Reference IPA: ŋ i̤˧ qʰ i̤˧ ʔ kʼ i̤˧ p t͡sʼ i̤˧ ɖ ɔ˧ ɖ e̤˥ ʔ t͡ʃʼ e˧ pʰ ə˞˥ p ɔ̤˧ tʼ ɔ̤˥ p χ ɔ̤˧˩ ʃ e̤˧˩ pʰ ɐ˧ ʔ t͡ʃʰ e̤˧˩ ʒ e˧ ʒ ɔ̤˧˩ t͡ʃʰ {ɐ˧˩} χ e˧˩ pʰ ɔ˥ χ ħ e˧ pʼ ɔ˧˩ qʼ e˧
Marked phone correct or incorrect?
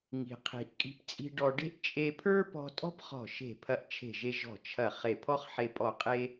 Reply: correct